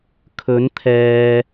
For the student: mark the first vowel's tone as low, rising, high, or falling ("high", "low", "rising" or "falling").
rising